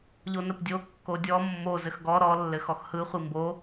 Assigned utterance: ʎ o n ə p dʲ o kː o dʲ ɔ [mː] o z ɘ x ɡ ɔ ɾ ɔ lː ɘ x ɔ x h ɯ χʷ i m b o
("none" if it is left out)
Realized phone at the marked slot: mː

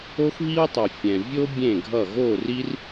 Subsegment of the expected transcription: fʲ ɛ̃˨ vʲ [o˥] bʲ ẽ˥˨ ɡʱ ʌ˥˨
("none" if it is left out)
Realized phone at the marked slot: o˥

